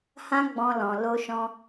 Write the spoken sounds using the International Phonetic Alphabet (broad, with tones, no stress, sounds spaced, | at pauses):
h ã˦ ɡ͡b ɔ̃˧ l ɔ̃˨ l o˧ ʃ ɔ̃˧